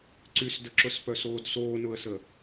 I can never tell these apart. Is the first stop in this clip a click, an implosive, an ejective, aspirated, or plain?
click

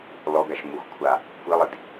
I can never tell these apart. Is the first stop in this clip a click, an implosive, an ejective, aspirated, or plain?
plain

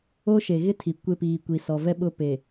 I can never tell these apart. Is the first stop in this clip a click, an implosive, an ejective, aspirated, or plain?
aspirated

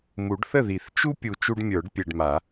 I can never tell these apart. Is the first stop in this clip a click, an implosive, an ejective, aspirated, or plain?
plain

